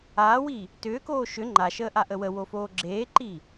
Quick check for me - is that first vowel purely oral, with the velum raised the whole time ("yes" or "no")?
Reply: yes